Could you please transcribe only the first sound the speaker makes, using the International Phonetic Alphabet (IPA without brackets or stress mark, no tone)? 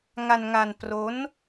ŋ